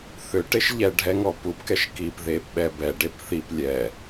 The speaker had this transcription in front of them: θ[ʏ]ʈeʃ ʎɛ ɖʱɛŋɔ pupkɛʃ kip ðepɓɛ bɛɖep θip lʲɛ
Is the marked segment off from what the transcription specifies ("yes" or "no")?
no